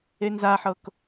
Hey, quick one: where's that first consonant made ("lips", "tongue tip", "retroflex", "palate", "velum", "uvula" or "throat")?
tongue tip